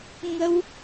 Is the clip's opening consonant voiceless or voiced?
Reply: voiced